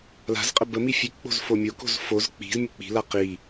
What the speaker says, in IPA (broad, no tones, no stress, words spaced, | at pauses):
la̤zqʼə bə mifʲʉkk͡po̤z fomʲoko̤z foz k͡pi̤z mʲək͡pi̤la qi